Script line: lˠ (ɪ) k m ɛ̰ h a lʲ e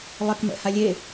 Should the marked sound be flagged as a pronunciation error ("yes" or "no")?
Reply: no